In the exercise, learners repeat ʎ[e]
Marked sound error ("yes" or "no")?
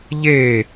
no